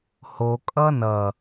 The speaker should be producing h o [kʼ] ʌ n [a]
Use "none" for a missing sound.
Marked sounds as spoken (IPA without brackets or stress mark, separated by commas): kʼ, ʌ